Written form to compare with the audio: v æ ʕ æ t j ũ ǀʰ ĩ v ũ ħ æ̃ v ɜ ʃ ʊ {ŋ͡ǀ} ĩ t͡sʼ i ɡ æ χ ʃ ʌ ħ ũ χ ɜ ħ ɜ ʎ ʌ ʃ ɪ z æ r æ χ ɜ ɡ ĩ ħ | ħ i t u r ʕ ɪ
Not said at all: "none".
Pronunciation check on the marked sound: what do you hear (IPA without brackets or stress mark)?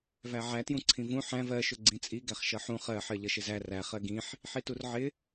ɡ͡ǀ